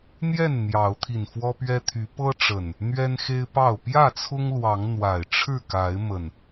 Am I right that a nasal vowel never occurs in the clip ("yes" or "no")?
yes